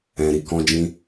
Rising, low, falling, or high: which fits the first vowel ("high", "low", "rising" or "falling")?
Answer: low